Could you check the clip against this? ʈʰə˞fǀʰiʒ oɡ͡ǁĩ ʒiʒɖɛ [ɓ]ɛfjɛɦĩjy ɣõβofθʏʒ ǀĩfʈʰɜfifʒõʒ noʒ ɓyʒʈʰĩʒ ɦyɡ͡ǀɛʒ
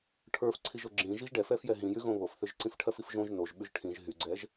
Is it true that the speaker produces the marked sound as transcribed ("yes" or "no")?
no